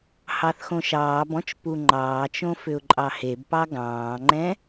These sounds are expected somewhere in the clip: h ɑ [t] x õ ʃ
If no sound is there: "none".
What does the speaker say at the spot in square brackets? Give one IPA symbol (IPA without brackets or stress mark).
θ